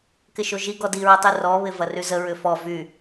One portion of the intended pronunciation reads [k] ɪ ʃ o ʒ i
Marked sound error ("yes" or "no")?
no